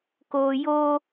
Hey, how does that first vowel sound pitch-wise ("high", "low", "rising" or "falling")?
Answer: high